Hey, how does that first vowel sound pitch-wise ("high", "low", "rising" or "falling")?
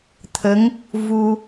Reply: rising